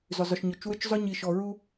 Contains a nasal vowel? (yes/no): no